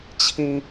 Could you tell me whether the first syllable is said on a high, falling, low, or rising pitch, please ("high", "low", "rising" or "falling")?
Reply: high